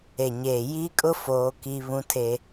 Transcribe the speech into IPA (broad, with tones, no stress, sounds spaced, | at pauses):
e˨ ɲ eː˨ j i˦ kʼ ʊ˦ f oː˦ k i˦ β ũ˦ tʰ e˦